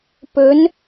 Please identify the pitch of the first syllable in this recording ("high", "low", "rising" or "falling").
rising